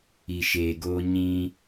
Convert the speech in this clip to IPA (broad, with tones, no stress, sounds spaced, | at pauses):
i˨ ʃ eː˨ ɡ oː˦ ɲ ĩ˦